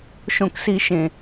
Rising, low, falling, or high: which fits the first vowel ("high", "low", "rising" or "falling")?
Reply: low